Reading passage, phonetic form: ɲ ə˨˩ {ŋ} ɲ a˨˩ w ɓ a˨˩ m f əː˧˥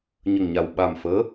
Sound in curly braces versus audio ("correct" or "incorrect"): correct